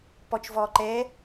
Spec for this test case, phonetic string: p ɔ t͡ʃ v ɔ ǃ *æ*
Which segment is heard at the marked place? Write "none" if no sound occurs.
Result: ɛ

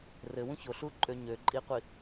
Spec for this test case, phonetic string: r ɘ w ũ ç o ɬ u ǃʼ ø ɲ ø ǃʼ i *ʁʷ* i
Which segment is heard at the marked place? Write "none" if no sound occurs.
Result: qʷ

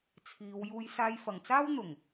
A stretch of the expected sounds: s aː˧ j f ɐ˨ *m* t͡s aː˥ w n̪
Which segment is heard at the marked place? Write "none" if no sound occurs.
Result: ŋ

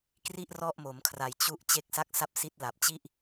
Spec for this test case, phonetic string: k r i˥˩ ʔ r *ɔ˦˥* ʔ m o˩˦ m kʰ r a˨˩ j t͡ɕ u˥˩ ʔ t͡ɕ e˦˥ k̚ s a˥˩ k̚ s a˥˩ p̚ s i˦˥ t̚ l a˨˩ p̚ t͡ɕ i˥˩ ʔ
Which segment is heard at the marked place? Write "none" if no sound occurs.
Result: ɔ˥˩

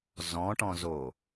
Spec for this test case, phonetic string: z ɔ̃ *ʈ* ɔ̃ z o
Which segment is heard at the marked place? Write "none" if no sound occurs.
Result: ʈ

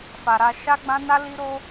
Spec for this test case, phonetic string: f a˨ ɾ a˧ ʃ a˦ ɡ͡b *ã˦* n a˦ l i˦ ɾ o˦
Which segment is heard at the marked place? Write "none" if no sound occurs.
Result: ã˦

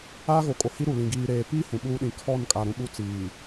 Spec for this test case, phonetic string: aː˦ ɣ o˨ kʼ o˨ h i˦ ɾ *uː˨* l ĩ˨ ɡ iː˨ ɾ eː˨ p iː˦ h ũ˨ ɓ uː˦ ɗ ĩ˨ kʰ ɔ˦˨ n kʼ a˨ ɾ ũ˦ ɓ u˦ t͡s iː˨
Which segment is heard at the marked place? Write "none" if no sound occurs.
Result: u˨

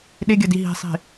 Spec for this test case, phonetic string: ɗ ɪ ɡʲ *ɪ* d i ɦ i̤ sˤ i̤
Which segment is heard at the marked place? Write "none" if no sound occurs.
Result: ə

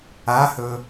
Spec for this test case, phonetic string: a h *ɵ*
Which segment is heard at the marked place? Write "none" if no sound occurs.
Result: ɵ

